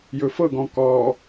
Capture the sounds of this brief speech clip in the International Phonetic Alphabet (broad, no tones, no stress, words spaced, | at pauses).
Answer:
jɵfɤɡɔ̃ kɔ